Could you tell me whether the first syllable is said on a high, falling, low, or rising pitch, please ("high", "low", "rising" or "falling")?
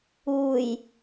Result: low